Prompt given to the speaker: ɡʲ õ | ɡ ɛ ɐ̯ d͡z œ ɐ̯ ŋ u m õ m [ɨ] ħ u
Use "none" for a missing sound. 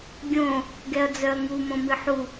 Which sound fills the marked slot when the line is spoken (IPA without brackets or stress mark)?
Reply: ɨ